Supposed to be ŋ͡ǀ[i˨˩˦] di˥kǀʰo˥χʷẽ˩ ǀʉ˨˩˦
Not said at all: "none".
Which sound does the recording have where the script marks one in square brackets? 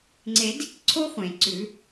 e˨˩˦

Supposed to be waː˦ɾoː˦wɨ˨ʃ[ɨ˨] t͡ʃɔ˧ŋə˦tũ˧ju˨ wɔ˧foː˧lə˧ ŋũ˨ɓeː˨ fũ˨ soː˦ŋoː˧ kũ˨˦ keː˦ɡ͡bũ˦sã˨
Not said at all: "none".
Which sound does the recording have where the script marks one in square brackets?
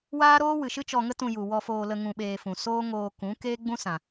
ɨ˦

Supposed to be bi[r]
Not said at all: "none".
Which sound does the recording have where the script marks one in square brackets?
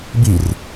r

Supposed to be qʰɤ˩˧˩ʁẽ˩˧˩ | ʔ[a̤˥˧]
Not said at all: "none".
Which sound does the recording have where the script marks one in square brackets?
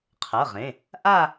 a˥˧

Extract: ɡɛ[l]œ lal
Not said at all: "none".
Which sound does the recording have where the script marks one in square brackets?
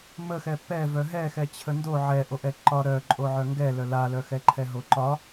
l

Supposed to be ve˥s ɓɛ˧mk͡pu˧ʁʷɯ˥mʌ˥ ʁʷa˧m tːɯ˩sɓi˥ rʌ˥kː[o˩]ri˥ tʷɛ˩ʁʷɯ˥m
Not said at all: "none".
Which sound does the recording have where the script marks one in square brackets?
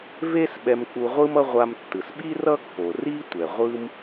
o˩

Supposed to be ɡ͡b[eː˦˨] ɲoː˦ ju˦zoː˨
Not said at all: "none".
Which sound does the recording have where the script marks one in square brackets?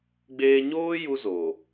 eː˦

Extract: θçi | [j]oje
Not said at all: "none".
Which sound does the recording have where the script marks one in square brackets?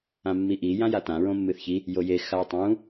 j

